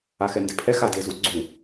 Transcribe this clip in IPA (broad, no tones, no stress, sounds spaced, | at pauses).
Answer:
a x ɛ n d ɪ pʰ ɛ x a d e z u ɡ͡ǀ u